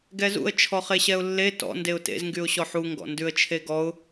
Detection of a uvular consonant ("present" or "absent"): present